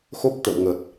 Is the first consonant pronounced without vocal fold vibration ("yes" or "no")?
yes